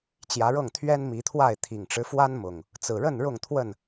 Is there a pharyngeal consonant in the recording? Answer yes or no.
no